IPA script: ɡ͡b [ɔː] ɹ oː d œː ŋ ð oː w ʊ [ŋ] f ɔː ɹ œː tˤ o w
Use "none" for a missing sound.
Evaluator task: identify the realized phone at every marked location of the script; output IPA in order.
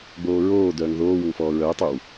oː, ŋ

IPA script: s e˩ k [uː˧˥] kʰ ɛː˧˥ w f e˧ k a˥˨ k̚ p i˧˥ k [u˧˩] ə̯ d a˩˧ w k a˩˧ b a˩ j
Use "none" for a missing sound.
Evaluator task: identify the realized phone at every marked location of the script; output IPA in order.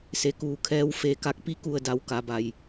uː˧˩, u˧˩

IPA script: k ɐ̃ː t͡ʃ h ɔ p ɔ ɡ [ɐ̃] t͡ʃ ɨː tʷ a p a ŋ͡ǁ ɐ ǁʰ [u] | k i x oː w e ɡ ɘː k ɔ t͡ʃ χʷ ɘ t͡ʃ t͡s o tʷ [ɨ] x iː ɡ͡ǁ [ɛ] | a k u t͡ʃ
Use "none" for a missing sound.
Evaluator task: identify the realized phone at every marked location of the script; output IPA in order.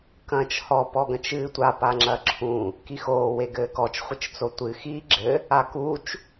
ɐ̃, ũ, ɨ, ɘ

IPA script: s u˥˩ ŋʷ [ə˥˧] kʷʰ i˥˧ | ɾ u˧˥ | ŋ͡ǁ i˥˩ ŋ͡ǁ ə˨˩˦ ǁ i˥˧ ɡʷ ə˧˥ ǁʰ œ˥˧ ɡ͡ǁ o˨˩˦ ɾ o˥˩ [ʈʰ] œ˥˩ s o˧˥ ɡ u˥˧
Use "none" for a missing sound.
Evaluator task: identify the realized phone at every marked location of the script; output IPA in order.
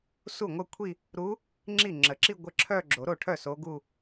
ə˥˧, ʈʰ

